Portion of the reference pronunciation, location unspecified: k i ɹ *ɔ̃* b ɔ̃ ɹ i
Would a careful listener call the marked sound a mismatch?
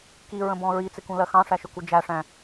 yes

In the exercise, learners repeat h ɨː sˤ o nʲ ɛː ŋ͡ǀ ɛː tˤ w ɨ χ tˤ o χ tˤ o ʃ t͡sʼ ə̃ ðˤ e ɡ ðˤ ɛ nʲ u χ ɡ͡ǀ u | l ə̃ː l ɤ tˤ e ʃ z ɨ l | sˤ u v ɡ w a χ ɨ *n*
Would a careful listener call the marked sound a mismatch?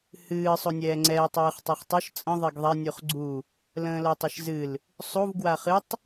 yes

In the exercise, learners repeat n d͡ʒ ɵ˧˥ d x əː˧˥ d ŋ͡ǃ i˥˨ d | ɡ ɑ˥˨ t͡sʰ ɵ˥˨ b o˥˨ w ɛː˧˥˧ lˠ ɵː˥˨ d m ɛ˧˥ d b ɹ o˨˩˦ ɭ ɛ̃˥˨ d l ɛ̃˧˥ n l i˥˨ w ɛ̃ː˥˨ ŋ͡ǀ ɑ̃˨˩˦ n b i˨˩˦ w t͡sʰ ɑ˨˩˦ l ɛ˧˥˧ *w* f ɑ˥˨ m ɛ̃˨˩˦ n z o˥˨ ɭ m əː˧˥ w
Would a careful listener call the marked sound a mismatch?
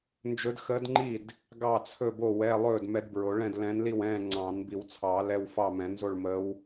no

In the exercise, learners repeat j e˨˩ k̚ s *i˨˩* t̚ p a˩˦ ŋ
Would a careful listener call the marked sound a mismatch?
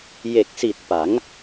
no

